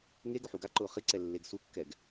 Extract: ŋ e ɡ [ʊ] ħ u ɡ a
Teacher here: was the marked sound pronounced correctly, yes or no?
yes